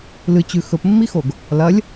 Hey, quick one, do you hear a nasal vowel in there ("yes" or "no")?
no